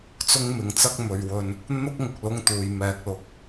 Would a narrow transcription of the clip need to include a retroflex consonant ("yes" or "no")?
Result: no